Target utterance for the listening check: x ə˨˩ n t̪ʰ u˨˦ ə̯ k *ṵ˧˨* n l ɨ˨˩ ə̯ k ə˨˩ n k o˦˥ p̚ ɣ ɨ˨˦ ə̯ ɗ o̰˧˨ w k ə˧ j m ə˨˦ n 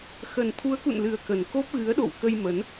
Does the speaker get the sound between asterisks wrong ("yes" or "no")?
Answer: no